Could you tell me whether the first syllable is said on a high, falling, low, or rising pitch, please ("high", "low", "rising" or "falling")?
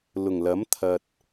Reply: low